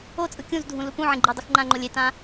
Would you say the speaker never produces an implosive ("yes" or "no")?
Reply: yes